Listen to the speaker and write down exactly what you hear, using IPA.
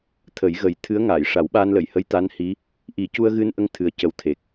t̪ʰ ə˨˩˦ j ɣ ə˨˩˦ j t̪ʰ ɨ˧˥ ə̯ ŋ aː˨˩˨ j ʂ a˨˩˦ w ɓ aː˧ n l ə˨˩˨ j h ə˧˥ j t̪ a˧˥ n h i˧˥ | ʔ i˨˩˦ c u˧ ə̯ ɣ ɨ˧ n ʔ ə˧ ŋ t̪ʰ ɨ˧˥ ə̯ c ə˧ w t̪ʰ e˨˩ k̚

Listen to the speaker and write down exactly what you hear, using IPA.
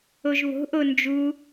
o ʒ β o̤ ʔ o n d͡ʒ u

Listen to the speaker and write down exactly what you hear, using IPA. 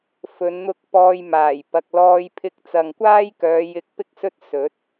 f ɵ˨˧ n n̪ ʊ˧ k̚ p ɔː˧ j m aː˨˩ j p ɐ˨ k̚ l ɔː˧ j pʰ ɪ˧ k̚ t͡s ɐ˨ ŋ kʷ aː˥ j k œː˨˧ j ɪ˧ k̚ p ɪ˥ k̚ s ɵ˥ t̚ s ɵ˨˥ t̚

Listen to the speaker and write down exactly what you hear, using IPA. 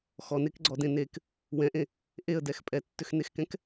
x ɔ n e k ɡ͡ǀ ɔ d ẽ n e k | w ɛ̃ ʔ ẽ | ʔ e ə̯ d ɛ x pʼ ɛ tː ʏ x n e x k ɛ̃ k

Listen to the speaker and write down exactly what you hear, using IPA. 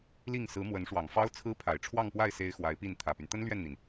l i˥˩ ŋ s ɹ̩˧˥ m w ə˧˥ n ʂ w ɑ˨˩ ŋ f ɑ˥ ʊ̯ t͡sʰ ɹ̩˥ pʰ a˨˩ ɪ̯ ʈ͡ʂʰ w ɑ˥˧ ŋ p w a˥˩ ɪ̯ s e˥ ɪ̯ x w a˧˥ ɪ̯ p i˥˩ n t̪ʰ ä˨˩ p y˦ n t̪ ə˥ n l ɥ ɛ˥˩ n n̪ i˩ n

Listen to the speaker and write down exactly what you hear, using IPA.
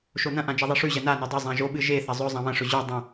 ʃ o n ɐ̃ ʔ ã d͡ʒ ɐ ðˤ i ʂ ʉ ʑ ɐ n a n o dˤ ɐ zˤ ã ʒ o ɓ ɨ ʒ e θ ɐ zˤ ɵ zˤ ã β ɐ̃ ʂ ɵ ʑ ʉ dˤ ɐ̃

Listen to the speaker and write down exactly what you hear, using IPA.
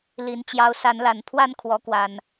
l i˨˦ n t͡ɕ j ɑ˨˦ ʊ̯ s a˨˦ n l a˨˩ n pʰ w a˥˨ n kʰ w ɔ˨˦ k w a˨˩ n

